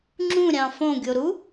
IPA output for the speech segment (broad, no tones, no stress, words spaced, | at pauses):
ŋ͡ǁũɾʲɑ̃ fõɡʲoɾu